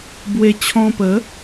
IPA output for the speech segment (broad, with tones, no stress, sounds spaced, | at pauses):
b w e˧ t͡ɕʰ ɔ̃˧ p ə˨˦